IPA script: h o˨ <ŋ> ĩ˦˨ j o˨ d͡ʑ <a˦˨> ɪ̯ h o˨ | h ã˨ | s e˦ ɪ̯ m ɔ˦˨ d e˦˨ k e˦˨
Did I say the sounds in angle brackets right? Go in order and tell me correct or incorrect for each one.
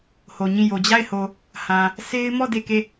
incorrect: ɲ, correct

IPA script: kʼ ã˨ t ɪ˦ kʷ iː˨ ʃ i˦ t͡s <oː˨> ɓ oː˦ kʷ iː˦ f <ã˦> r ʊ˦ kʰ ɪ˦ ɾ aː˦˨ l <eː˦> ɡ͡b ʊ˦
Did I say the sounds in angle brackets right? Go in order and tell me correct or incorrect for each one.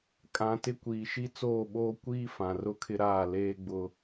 incorrect: oː˦˨, incorrect: ã˨, correct

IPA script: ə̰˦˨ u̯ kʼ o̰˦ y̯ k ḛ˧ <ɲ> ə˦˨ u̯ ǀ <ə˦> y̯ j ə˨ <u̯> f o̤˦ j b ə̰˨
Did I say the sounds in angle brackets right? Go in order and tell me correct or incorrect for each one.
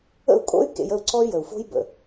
incorrect: j, incorrect: ɔ˦, correct

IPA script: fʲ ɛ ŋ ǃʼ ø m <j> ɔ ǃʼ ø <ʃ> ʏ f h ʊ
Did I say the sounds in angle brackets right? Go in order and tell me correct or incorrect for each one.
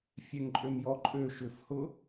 correct, correct

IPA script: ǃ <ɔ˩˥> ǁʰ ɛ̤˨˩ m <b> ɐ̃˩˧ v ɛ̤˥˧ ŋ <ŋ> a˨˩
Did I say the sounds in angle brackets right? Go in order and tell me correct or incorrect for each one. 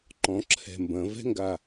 incorrect: ɔ̃˩˥, correct, incorrect: ɡ

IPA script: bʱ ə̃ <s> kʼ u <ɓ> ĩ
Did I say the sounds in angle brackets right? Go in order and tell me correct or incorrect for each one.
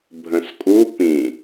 correct, incorrect: p

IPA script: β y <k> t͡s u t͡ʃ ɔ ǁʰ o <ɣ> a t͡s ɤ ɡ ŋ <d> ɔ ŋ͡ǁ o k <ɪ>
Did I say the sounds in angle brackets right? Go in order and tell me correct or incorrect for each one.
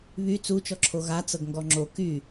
incorrect: none, correct, incorrect: ɡ, incorrect: y

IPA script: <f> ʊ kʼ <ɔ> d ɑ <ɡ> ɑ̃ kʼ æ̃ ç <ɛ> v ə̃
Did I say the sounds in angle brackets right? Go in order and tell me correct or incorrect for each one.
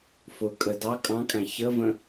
correct, incorrect: ə, incorrect: kʼ, incorrect: ə

